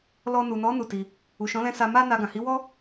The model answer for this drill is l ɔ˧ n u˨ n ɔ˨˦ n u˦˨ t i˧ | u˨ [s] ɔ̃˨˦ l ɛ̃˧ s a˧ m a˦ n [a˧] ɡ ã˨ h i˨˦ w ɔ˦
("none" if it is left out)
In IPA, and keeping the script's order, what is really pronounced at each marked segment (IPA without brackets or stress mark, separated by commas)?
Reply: ʃ, a˧